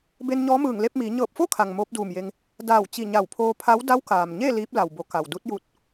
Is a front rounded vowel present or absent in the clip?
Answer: absent